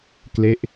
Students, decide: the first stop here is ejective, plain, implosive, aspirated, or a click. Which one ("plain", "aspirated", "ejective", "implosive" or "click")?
plain